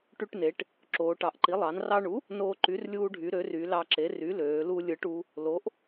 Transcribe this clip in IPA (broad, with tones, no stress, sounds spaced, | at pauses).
ʈ y˧ ʈ n e˩˧ ʈ | ǁ oː˩˧ ʈ ɑ˩˧ ʔ ǃ i˩˥ lˠ ɑ˩˧ n r ɑ˧ ɳ u˩˥ | n oː˧ ǃ y˩˥ r lʲ uː˧ ɖʱ y˩˧ ɾ ø˩˥ r y˩˧ l ɑ˧ ǁ e˩˥ r y˩˥ l øː˩˧ l u˧ lʲ ɯ˩˧ ʈ u˩˧ | l o˩˥ ʔ